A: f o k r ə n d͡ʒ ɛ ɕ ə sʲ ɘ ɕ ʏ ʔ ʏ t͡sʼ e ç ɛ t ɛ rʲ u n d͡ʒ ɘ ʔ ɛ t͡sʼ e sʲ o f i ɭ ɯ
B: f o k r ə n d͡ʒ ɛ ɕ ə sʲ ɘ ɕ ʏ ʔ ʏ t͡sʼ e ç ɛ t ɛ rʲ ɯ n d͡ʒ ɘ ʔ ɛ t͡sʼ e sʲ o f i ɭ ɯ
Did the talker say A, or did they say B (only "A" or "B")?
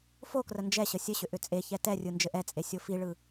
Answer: B